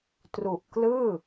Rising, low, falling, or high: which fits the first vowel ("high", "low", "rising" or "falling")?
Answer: low